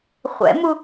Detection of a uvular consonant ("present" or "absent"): present